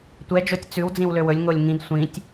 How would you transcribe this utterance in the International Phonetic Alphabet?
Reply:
tʷɛd͡ʒotʲ t͡sʉw d͡zĩwløwɵlʲ ŋolʲŋĩd sʷĩtʲ

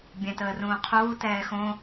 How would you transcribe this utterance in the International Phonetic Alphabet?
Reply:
bʲɛ̃təːrũːqʰuː tɛːxõ

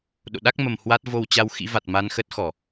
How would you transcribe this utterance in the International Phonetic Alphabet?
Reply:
ɗo̰˧˨ɗa˦˥k̚mə˨˩m hwa˦˥t̚ vo˧wt͡ɕa˧wxḭ˧˥va˨˩t̚ ma˧nxə˦˥t̚xɔ˧˩˨

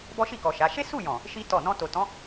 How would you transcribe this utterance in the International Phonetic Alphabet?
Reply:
bɔ˦ʃi˦˨kɔ˨ ʃa˨˦ ʃe˦su˦˨jɔ̃˨ | ʃi˦ tɔ˦˨ nɔ̃˧ to˨tɔ̃˨˦

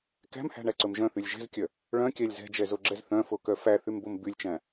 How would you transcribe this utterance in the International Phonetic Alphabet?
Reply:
kæ̤mhæ̤ɳæǀɵm ʒœ̃θylʲ ʒɛ̤zkʲœ | ɭœ̃kʲælʲ zɛ̤d͡ʒɛzoɡ͡ǁɛz θœ̃fokœ fæθymbom bylʲt͡ʃæ̃

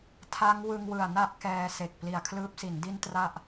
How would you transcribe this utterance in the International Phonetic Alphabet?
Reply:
tʰa˦˥ŋ wɯ˧ŋwɯ˨˩a̯na˥˩ʔ kɛː˧se˨˩k̚ pli˨˩a̯kʰlɯː˦˥p̚si˩˦n di˥˩n tra˥˩ʔ

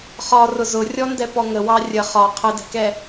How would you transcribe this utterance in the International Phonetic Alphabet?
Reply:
χɒrʊ zʊrʲɔndɛpɔ ŋəwɑ rʲə χɒ qʰədɛ̤kɛ

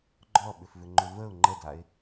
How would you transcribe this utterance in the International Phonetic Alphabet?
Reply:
ɡ͡ǃɔɓʏfvʏŋ͡ǃʏ vəʊ̯ ŋ͡ǃədaɪ̯

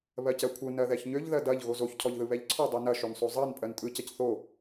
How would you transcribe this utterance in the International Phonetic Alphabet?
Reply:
βɜcɜkʷʰɯ nɜðɛçɲøʎ ðɜdɐʎ ɣozoç cʰɔʎðɯβɛʎǀʰɔ dˤonɐ ʃønsˤozˤɜn pʼɜntʼɯ cɐcθo

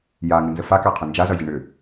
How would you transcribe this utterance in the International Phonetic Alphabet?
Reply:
jaŋɨnzə fakaqʰʏ nd͡ʒazʌzʲə ɳʏ

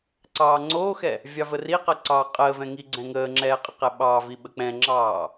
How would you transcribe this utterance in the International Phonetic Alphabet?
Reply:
ǀɑːŋ͡ǀoːxɛ | vʲɑvəriqə ǀɑːqʼəːvɛ̃ ŋiɡ͡ǀɛ̃ŋəːŋ͡ǁɛː qʼəqɛɓɑːvi ɓək͡pɛ̃ŋ͡ǁɑː

